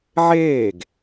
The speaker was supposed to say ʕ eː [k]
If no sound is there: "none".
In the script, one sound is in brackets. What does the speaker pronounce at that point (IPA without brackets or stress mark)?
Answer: ɡ